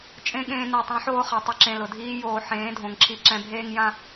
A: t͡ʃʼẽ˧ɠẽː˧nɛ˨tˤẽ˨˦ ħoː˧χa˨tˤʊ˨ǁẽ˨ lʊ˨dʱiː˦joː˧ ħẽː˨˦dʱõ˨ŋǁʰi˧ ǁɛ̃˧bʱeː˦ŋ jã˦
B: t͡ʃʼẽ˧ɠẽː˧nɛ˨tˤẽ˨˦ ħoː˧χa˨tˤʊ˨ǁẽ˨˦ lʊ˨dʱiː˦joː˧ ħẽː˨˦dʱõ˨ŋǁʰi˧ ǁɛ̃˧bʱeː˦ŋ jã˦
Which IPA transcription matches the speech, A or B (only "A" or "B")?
A